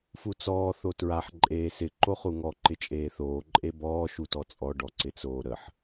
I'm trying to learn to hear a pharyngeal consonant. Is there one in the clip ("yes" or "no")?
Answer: yes